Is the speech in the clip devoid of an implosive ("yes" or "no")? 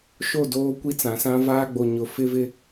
yes